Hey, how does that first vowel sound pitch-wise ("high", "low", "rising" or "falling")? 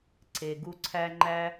low